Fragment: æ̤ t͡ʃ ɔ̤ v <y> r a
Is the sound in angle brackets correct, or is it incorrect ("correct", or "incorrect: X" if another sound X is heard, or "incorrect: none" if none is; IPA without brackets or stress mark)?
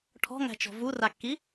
incorrect: u